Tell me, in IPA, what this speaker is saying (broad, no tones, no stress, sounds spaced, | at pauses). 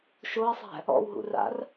ʃ o ə̯ sˤ æ̤ | ɔ̰ w ɦ ṵ r a̰ r